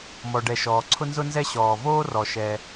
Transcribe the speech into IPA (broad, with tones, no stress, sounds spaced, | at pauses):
m ɔ˩ ɖ ɛ˩ ʃ ɔː˩ ǀʰ ʊ˥ n z ʊ˥ n z ɛ˥ ɕ ɔː˩ v oː˥ r ɔ˩ ʃ ɛ˩